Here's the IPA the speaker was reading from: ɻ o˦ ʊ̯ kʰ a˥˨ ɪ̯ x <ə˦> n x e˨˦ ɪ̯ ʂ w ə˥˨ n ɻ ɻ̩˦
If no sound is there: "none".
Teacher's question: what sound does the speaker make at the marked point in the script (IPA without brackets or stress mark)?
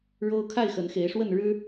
ə˨˦